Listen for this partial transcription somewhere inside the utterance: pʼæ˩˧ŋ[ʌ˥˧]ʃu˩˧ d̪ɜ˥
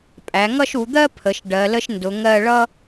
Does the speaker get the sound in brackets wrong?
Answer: no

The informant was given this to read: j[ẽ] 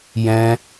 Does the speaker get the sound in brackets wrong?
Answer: yes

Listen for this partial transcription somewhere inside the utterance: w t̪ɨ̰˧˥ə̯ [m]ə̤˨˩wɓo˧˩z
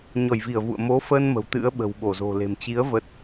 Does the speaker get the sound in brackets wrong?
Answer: yes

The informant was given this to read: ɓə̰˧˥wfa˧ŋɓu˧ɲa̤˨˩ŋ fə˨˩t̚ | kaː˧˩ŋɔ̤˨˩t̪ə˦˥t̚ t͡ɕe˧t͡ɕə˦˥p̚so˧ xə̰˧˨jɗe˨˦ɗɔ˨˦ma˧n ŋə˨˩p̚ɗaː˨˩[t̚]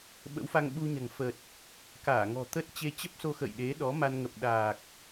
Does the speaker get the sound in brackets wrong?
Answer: yes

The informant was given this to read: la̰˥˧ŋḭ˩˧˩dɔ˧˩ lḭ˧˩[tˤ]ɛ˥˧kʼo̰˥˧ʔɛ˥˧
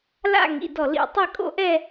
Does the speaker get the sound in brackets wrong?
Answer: no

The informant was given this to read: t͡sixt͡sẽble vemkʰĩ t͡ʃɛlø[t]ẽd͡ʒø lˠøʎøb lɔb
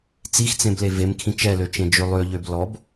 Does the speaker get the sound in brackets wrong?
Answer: yes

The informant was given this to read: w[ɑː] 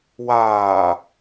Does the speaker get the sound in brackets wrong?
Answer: yes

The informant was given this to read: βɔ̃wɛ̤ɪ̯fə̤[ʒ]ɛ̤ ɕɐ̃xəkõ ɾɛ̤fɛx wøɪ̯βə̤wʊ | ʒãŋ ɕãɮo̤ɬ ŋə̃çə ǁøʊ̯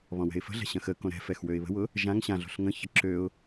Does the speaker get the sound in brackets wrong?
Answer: yes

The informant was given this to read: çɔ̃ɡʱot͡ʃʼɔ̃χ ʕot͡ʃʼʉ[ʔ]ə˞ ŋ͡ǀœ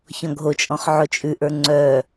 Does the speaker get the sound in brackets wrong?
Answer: no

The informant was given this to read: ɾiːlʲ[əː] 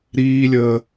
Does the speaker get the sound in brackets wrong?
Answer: no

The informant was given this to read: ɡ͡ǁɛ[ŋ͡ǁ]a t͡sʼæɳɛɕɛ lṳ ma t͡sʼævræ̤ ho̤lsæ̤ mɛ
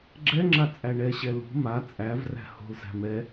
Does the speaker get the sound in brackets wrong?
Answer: no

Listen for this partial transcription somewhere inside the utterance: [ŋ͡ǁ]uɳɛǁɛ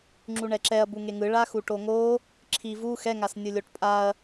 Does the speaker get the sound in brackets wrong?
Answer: no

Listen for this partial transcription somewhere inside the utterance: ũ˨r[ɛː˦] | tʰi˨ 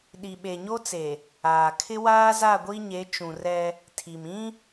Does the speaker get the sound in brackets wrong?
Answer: yes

